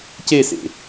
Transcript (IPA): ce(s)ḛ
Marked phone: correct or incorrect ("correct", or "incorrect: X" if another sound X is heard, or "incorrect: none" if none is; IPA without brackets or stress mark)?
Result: correct